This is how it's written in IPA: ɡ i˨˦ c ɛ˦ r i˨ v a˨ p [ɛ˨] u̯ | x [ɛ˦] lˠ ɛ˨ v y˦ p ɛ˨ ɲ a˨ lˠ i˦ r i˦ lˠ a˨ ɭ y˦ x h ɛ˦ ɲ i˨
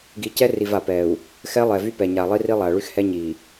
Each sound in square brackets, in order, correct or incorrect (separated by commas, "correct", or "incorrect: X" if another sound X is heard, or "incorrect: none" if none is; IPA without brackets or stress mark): correct, correct